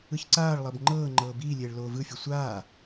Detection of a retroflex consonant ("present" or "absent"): present